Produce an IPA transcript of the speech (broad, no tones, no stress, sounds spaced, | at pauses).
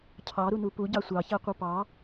cʰ ɑ ɾ u n u p u ɟ ɑ sʷ ɑ ç æ qʷ ə˞ p ɑ